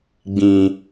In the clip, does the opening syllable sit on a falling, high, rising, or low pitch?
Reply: low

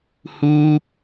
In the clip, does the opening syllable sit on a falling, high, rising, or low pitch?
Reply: high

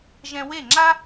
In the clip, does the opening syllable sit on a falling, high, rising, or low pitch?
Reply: high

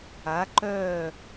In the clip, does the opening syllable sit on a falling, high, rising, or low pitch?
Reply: rising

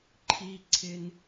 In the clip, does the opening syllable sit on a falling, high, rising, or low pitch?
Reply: high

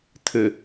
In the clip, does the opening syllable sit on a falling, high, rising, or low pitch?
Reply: low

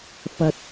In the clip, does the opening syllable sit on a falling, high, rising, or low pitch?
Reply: low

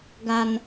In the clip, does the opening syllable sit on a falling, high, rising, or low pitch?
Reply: low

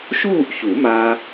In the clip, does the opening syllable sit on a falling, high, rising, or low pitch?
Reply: falling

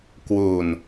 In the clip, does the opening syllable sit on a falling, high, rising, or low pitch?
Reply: low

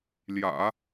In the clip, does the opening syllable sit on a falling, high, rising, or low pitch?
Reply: low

